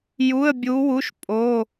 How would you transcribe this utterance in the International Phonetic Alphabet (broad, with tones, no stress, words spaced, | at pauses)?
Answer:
ju˧˥˧ə̯bʲu˧˥wu˧˥˧ʃ pʼo˧˥˧